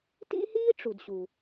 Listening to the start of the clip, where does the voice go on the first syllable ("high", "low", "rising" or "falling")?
high